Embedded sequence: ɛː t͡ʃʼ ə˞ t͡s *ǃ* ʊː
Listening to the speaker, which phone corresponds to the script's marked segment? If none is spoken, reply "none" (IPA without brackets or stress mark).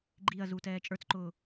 ǃ